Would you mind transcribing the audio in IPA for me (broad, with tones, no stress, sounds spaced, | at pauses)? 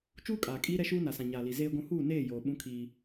t͡ʃ uː˦ kʼ aː˨ kʼ iː˦ ɾ ɛ˦ ʃ uː˦ n a˨ s ã˨ ɲ aː˨ l i˨ z eː˦ ɡʷ ũ˦ h uː˦˨ n eː˦˨ j oː˨ ɓ ũ˦ kʰ iː˦